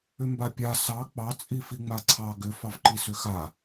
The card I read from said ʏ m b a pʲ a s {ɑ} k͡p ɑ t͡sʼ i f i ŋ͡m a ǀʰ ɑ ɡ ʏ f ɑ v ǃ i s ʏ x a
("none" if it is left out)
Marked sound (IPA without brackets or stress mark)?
ɑ